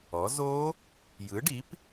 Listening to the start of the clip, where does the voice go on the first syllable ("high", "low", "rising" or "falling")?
rising